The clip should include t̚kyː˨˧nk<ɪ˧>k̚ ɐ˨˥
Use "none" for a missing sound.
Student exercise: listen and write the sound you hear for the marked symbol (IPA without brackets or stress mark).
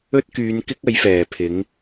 ɪ˥